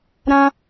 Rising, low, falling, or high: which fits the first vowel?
high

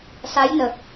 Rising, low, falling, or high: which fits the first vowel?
rising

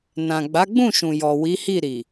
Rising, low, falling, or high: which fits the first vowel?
low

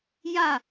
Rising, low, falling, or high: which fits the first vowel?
falling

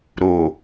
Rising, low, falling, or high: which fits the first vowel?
low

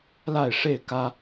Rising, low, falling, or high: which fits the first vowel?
falling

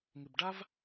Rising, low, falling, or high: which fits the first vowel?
low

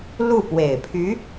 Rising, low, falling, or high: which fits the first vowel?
falling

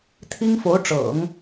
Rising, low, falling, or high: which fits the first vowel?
high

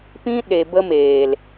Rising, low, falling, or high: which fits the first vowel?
high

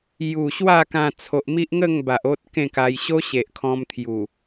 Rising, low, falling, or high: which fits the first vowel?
low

